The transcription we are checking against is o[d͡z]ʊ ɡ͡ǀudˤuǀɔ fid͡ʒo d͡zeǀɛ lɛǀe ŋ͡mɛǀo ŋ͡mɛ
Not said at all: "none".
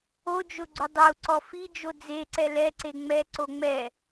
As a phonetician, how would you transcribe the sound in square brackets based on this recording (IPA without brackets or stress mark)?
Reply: d͡ʒ